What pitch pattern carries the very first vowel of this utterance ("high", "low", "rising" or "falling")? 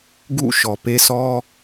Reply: falling